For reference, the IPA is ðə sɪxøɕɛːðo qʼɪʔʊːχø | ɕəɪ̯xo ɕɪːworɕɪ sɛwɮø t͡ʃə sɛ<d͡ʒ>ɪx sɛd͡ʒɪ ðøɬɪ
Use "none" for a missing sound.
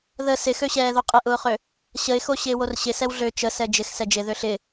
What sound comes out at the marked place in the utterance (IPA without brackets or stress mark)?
d͡ʒ